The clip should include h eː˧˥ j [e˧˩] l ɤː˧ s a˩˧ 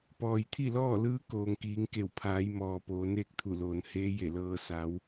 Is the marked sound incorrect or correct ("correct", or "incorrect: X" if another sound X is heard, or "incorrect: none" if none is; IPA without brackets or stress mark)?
correct